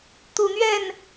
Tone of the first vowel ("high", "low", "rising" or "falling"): low